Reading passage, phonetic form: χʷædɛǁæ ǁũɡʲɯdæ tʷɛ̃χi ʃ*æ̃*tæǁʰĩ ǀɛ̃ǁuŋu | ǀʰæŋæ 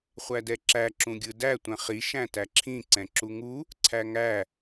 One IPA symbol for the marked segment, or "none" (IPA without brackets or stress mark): æ̃